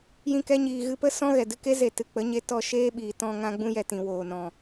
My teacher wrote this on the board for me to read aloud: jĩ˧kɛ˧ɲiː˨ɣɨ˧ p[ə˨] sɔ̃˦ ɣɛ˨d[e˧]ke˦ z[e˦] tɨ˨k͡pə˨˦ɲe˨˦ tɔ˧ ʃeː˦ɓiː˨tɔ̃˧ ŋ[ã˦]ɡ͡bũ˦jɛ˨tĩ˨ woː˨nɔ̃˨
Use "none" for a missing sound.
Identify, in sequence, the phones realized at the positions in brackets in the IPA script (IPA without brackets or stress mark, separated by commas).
ə˦, ɨ˧, e˨, ã˦